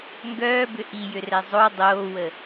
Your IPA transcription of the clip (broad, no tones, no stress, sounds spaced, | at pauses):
ŋ ɡ œː b ʏ ʔ i j ʏ r ɛ zˤ o dˤ oː w ə